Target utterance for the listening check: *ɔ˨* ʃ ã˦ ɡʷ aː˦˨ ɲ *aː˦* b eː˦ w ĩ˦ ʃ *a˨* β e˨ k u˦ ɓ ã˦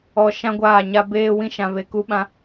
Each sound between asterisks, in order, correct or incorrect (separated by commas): correct, incorrect, incorrect